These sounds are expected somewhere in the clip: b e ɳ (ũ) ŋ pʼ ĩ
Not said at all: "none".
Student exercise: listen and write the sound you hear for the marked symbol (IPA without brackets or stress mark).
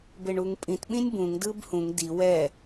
u